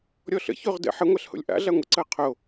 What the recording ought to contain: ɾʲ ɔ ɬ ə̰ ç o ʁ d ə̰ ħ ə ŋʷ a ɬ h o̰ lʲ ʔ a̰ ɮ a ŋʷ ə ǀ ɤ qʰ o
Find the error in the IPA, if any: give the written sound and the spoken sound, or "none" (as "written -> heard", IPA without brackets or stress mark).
none